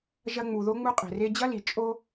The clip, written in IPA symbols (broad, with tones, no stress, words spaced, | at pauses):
ʒɐ˧ŋ͡mu˨ ðo˦ŋ͡mu˦ qʼe̤˨re˧d͡ʑɐ˦li˨ t͡ʃʼo˧